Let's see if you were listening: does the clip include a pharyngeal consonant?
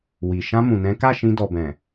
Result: no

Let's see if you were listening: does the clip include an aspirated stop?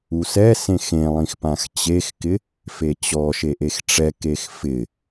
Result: no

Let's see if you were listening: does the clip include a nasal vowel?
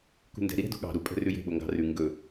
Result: no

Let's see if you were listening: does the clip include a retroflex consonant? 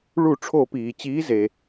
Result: yes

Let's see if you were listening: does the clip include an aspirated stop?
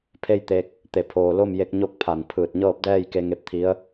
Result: yes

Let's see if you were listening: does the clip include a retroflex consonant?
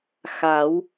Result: no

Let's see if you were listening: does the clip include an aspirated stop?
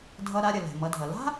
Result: no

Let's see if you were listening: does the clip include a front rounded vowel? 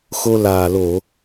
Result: no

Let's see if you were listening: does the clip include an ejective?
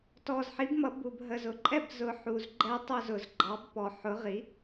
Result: yes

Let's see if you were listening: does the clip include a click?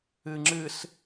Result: yes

